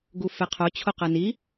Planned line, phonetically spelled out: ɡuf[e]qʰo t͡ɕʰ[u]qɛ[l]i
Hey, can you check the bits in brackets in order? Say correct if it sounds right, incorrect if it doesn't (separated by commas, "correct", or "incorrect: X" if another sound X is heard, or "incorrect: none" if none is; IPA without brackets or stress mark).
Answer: correct, incorrect: o, incorrect: n